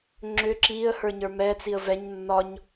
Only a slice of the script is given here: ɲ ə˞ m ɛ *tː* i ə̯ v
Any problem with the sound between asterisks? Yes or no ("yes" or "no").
yes